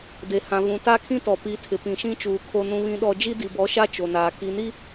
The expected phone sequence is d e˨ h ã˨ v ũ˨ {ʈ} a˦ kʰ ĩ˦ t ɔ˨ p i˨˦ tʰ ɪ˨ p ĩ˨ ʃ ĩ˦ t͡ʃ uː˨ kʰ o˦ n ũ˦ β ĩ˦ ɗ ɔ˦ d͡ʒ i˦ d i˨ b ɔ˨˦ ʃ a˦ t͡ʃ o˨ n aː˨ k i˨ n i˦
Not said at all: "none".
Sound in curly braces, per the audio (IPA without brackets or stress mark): t